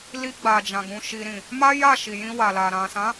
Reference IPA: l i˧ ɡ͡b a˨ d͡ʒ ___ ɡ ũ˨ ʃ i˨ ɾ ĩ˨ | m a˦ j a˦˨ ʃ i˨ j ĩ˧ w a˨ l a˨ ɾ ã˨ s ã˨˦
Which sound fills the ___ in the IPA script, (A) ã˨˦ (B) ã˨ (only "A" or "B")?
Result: B